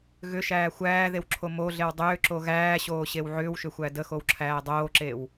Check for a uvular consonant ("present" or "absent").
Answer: absent